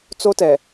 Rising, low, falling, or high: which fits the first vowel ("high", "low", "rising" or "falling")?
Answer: high